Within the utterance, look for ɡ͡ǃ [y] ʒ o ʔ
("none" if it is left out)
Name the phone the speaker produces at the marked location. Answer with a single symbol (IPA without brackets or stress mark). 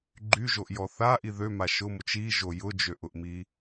y